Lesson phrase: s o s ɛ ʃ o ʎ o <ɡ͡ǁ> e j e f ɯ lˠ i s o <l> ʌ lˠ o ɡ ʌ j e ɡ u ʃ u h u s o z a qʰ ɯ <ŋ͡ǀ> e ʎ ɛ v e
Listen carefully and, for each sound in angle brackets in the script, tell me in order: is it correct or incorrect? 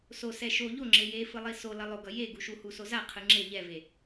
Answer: incorrect: ŋ͡ǁ, correct, incorrect: ŋ͡ǁ

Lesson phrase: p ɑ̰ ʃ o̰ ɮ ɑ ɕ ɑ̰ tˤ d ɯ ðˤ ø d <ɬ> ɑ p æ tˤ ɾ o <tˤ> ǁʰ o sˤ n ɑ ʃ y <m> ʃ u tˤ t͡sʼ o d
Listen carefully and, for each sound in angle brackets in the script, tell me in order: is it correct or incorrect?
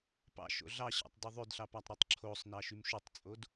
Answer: correct, correct, correct

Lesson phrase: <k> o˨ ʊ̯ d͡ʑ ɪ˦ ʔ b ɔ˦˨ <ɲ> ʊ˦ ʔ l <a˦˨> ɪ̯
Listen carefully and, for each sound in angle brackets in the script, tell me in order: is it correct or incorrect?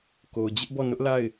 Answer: correct, incorrect: n, correct

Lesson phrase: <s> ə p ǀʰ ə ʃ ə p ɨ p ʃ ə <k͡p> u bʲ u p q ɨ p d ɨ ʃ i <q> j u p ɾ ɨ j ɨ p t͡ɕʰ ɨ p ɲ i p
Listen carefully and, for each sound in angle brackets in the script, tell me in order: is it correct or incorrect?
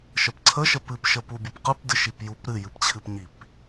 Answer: incorrect: ʃ, incorrect: p, incorrect: p

